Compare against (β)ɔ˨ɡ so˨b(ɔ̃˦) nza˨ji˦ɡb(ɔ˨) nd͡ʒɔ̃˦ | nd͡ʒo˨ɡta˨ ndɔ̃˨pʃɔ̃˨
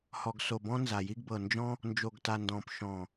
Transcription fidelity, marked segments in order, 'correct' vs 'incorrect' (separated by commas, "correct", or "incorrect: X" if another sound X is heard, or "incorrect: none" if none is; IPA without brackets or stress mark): incorrect: h, correct, incorrect: ɤ˨